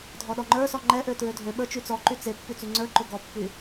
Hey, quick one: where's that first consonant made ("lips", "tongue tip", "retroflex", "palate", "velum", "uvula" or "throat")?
tongue tip